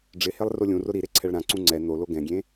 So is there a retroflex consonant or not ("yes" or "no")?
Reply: yes